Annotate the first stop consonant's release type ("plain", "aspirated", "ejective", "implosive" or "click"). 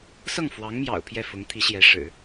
aspirated